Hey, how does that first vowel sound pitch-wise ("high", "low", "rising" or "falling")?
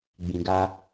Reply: low